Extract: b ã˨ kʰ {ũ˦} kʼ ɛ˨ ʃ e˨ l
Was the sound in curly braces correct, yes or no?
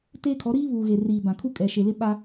no